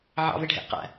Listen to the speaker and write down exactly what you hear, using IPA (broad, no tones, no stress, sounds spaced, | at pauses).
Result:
ʕ ɑ̰ v ɪ ɖʱ ɛ̰ ʔ q æ̰